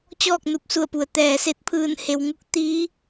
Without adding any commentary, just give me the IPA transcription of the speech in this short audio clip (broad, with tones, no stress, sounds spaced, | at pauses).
t͡ɕ ɔː˥˨ k̚ n u˧˩ p̚ s u˧˩ ə̯ p u˩ ə̯ t̪ ɛː˩ s e˧ t̚ pʰ ɯː˧˩ n h e˩ w ŋ u˧ k̚ t̪ iː˧˥